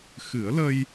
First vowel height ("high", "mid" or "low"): high